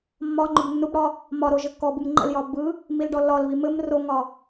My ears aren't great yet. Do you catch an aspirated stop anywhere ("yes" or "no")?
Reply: no